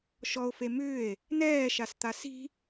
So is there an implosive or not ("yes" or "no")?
no